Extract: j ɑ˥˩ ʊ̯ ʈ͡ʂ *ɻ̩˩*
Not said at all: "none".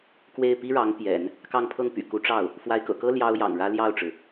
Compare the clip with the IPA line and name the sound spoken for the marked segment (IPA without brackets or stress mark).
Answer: ɻ̩˩